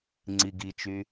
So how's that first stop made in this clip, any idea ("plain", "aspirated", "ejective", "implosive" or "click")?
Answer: click